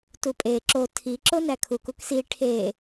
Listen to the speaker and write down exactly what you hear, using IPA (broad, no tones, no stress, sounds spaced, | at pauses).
t u pʼ e ǁ o tʰ i ǁ o n æ kʰ u k u k s i ʈʰ e